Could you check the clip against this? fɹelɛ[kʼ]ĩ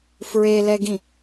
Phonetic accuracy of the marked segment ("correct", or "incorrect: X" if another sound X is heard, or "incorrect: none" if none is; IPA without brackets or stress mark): incorrect: ɡ